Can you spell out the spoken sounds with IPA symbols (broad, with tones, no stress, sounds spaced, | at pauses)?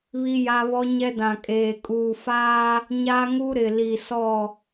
β i˦ j a˦ β ɔ˦ ɲ ɛ˦ d ã˨ kʼ eː˨ kʼ uː˨ f aː˦ | ɲ a˦ ŋ u˦ ɾ ɪ˨ l i˨ s ɔ˦˨